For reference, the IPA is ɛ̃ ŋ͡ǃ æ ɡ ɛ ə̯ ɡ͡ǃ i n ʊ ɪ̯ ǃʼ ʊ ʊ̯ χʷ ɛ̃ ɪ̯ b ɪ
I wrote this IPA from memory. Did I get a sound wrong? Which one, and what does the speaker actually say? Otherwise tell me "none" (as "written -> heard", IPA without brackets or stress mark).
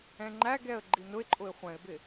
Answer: ʊ̯ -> ɪ̯